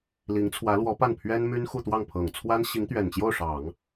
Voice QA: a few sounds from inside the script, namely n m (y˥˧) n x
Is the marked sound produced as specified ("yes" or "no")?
no